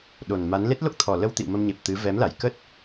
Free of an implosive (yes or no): no